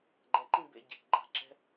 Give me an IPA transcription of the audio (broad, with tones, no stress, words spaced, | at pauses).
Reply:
ɡ͡ǃɛ˨ǃĩ˦ bḛ˧ɟe̤˨kɡ͡ǃa̤˧ ǁɛ̤˧